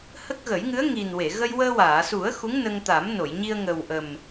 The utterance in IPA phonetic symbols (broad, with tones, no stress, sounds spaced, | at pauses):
h ə˦˥ k̚ ɣ ə˨˩˦ j ŋ ɨ˧˥ ə̯ ŋ i˨˩ n w e˨˩˨ ɣ ə˧ j w əː˧ w aː˨˩˨ s u˨˩˦ ə̯ x u˧˥ ŋ n ə˧ ŋ t̪ a˨˩˦ m n o˨˩˨ j ɲ i˧ ə̯ ŋ ə˨˩ w ʔ ə˨˩ m